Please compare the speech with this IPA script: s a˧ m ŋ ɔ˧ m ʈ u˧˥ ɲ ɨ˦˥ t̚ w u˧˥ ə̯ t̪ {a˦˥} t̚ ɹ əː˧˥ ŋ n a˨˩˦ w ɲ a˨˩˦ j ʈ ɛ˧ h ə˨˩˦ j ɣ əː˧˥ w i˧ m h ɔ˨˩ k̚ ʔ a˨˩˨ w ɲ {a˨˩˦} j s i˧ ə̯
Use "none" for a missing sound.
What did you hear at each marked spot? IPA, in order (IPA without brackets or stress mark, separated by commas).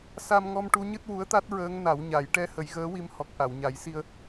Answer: a˦˥, a˨˩˦